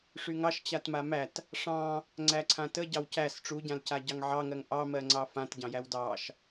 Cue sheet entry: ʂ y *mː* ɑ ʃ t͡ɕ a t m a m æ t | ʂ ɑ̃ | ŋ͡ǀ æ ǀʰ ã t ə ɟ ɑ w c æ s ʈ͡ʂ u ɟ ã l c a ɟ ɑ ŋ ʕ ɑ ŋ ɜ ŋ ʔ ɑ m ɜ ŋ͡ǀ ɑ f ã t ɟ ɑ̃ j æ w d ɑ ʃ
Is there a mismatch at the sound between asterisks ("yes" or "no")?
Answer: yes